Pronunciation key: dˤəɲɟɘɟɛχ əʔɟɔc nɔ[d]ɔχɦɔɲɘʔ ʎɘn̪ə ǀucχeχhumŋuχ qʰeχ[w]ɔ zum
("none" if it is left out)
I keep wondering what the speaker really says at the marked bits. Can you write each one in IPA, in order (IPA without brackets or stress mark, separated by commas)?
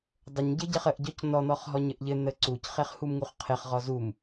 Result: n̪, ʁ